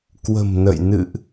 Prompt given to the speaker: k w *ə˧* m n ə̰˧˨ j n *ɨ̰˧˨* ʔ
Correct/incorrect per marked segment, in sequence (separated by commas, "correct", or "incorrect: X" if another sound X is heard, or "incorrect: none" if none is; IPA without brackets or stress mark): incorrect: ə̤˨˩, correct